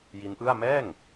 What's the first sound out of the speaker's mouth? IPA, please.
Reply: j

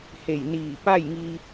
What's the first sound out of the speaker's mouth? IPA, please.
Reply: h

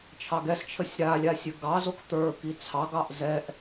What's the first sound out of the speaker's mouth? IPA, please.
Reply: t͡ʃʰ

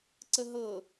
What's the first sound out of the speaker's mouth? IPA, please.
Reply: ǀ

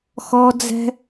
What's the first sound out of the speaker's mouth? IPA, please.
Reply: x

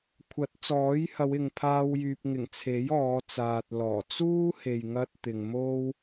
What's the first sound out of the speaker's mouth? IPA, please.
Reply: kʷʰ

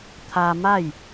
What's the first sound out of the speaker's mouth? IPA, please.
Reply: t̪ʰ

